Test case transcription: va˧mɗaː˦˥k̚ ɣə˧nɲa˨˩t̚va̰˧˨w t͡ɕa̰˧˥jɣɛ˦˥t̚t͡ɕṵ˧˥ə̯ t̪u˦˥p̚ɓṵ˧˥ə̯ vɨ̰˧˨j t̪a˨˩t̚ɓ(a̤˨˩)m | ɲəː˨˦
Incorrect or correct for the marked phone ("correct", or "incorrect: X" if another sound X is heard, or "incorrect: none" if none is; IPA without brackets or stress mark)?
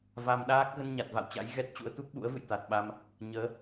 incorrect: a˧